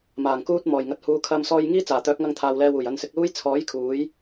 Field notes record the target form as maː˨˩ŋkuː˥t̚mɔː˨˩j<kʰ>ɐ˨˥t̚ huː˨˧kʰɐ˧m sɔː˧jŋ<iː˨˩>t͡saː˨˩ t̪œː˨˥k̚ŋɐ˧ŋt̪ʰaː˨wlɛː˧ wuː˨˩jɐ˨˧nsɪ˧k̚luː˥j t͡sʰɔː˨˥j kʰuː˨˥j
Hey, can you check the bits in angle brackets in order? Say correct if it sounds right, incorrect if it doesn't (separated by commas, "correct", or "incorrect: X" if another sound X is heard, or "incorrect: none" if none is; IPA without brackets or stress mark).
incorrect: ŋ, incorrect: iː˥